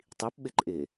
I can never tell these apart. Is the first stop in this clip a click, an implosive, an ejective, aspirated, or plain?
plain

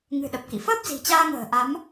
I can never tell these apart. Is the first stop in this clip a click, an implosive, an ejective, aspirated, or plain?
implosive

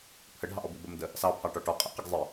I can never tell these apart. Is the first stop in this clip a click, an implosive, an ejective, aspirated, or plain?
aspirated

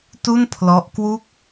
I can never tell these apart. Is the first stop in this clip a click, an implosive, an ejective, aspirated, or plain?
plain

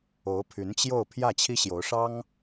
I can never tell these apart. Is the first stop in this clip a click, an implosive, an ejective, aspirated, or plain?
aspirated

